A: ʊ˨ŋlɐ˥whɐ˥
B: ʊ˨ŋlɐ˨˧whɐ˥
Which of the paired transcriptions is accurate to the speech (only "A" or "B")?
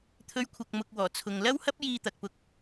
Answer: A